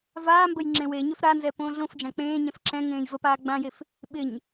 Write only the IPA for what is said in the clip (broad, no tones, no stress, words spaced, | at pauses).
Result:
vaːmbəj ŋ͡ǁẽweɲøf ɾanzɛ põːɮõfd͡ʒã k͡pẽːɲɛ̃f ǁɛ̃ ŋẽːjvəpaː ɡ͡bãjef | ɓɪɲ